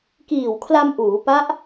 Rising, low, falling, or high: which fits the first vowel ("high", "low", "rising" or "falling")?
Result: low